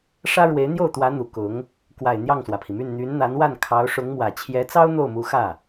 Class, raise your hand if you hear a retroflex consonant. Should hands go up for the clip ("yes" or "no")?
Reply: yes